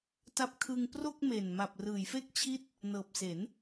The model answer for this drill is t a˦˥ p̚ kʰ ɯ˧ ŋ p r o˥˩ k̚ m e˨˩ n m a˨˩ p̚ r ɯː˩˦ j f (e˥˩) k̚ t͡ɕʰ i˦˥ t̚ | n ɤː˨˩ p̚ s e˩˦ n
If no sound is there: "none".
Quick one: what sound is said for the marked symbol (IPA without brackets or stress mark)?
e˥˩